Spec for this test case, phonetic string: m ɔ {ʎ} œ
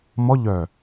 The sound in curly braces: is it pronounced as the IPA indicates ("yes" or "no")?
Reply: yes